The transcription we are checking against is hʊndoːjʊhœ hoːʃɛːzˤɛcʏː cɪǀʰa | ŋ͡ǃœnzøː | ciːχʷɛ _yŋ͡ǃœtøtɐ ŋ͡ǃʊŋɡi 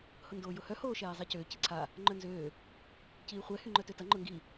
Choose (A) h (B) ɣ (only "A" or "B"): A